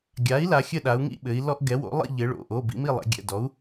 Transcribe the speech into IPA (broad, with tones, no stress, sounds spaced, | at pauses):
ɡʲ a˩˧ i̯ l a˩˧ xʲ ɘ˥˨ ɗ a˩˧ u̯ ŋ ḭ˥˨ ɓ ɘ˩˧ i̯ l ɔ˦ ʔ ɡ ɛ˩˥ w o̰˩˥ lˠ ḭ˥˨ ʎ ɘ˩˧ ɭ o̰˩˧˩ ʔ o˩˧˩ b ḭ˦ m i˥˨ lˠ ɛ̰˩˧ ɡʲ ɛ̰˩˧˩ d ɔ˩˥ u̯